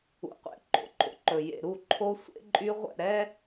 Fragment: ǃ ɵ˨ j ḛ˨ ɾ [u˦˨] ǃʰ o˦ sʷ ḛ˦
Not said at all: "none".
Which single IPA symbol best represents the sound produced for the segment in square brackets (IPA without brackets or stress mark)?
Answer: u˦˨